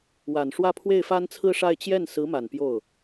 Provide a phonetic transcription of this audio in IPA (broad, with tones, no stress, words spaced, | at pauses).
wa˨˩nʂwä˥˧ pʰwe˥˩ɪ̯fa˥nt͡sʰɹ̩˥ʂa˥˧ɪ̯ t͡ɕjɛ˥˩n sɹ̩˧˥ma˨˩n pjo˥˩ʊ̯